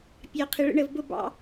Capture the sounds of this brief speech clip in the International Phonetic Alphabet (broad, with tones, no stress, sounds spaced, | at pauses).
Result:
pʲ ɑ˧ qʰ ɪ˧ ɭ ə̰˦ ɳ ə˧ v b ʊ˦ b ɑ̰˦